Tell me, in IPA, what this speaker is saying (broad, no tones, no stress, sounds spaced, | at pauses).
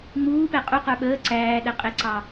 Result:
ŋ͡m uː p ɛ qʼ u q ə˞ ɓ əː ǀ æː ɗ ɛ qʼ ɪ ǀ ɑ